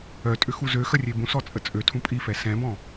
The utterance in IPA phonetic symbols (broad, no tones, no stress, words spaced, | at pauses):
œtʼʏ xuzøxə rʲebũsɔ t͡sʼət͡sʼøtʰũ pʼifɛ sɛ̃bɔ̃